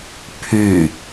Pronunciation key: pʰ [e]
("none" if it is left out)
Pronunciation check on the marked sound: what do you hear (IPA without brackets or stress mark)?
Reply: y